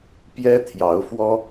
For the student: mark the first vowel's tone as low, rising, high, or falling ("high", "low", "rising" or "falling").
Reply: high